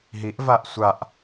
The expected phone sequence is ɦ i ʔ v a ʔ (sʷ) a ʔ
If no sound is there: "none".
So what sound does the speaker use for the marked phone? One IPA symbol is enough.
sʷ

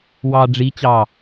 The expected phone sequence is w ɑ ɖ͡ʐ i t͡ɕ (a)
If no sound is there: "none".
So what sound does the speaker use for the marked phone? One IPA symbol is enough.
ɑ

